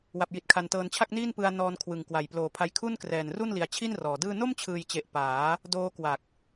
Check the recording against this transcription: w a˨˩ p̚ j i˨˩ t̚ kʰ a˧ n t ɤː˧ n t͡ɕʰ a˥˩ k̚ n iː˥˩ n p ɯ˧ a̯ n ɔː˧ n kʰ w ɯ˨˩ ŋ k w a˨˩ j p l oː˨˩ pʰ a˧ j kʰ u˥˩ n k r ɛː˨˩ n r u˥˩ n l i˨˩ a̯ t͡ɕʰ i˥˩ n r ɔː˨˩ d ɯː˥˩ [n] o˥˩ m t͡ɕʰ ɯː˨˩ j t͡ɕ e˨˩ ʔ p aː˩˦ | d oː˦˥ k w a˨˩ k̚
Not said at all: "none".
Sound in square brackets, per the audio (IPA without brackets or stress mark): n